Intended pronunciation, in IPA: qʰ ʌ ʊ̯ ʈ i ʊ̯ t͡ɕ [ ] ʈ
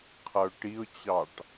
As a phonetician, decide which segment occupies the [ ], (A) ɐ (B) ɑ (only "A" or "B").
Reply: B